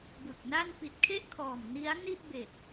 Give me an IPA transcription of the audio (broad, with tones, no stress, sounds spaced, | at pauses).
b ɯ˨˩ k̚ n a˥˩ n p i˨˩ t̚ kʰ e˥˩ ʔ kʰ ɔː˨˩ m n i˦˥ a̯ n i˥˩ ʔ b e˨˩ k̚